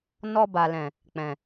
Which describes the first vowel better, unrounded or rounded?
rounded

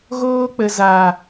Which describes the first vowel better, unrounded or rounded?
rounded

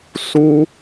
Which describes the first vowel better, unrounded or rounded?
rounded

